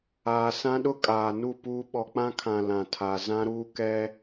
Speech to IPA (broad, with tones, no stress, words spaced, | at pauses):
aː˨sã˦ɗʊ˦kʼaː˨ nu˦˨puː˦ ɓɔ˨k͡pã˦kʰã˨ lã˨tʰa˨ zã˦ɾuː˦kɛ˦